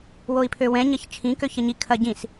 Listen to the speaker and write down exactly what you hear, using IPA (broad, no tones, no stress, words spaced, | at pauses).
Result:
woi̯pʰøwɛ̃ ɲɐçt͡ʃʰĩ køçɐɲi kʰɐɟĩs